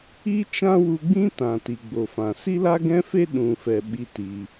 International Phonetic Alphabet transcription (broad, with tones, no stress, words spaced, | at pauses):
i˦t͡ʃã˦wu˧ɡ͡bĩ˦ tã˨ti˨ ɡ͡bo˨fã˨ si˦la˦ɡɛ̃˦fe˦ ɗũ˨fɛ˨ ɓi˦ ti˧